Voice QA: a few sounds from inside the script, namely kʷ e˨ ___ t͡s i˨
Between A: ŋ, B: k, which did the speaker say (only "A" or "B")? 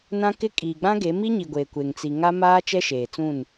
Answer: A